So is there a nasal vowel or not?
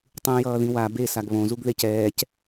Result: yes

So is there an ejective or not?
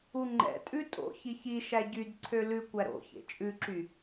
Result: yes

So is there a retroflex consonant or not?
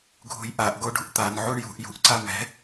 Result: yes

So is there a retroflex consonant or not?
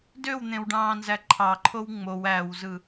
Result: yes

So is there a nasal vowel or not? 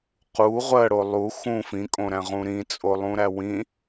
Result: yes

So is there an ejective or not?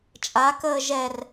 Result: yes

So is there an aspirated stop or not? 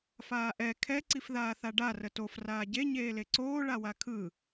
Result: yes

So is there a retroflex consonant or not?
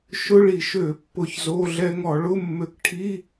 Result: yes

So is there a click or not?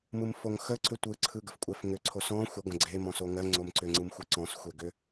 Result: yes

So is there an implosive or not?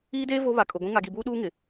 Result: yes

